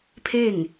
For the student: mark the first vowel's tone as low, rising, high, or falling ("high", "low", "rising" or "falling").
falling